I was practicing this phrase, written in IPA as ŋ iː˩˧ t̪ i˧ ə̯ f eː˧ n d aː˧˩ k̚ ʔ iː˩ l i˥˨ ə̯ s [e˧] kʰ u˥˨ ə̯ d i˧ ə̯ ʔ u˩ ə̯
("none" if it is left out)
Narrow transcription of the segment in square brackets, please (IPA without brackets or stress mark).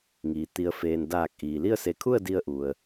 e˧